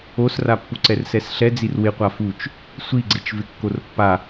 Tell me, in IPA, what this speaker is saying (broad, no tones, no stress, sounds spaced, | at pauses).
o s r a pː u ǀ ɛ r s ɛ s ɬ ɛ d͡z i r w ɪ qʷ a f u t͡ʃ | sʷ i ɡ͡ǀ ɪ t͡ʃ v ɪ kː o r pː a